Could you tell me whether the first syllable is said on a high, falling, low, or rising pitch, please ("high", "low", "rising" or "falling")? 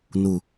low